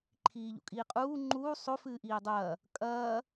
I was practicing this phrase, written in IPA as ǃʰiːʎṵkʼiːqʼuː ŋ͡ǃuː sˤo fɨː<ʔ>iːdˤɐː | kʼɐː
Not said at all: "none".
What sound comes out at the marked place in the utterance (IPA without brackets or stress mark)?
ʔ